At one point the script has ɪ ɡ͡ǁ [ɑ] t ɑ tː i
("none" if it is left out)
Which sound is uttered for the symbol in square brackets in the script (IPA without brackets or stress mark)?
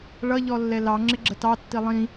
ə